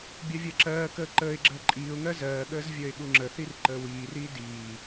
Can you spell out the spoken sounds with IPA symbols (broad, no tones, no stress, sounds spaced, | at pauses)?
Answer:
bʲ ɜ vʲ ɜ ǁ ɜː k əː ǃ əː ɪ̯ ɡ͡ǁ əː ǃʼ iː ʊ̯ ŋ ɜ z ɜː ɠ əː z vʲ əː ɪ̯ ɠ u ŋ͡ǁ ə θ i r ǃ əː w iː r iː d iː